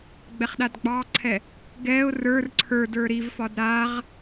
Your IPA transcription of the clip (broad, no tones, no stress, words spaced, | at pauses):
ɡ͡bɛχɗadɡ͡bɑǀʰɛ | ɡɛʊ̯ rə˞r ǀʰə˞də˞ ɾivfɒd ɾaʁ